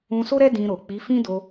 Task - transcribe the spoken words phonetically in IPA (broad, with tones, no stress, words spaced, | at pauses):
ũ˧so˦ɾɛ˦ dĩ˧ɾo˨ k͡pi˨˦ fĩ˦do˧